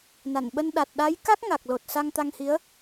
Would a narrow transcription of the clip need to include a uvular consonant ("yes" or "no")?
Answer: no